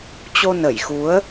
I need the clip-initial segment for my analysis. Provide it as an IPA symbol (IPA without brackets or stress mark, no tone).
t͡ɕ